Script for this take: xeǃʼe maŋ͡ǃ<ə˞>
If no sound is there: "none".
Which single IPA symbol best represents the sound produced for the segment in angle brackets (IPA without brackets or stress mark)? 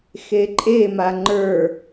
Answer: ə˞